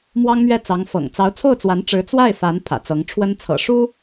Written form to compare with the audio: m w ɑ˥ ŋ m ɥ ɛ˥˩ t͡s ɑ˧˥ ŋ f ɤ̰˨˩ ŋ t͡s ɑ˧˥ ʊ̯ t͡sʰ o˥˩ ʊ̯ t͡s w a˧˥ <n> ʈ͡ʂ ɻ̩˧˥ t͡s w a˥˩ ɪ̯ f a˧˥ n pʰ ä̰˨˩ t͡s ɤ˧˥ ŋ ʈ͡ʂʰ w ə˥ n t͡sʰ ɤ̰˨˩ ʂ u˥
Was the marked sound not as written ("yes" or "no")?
no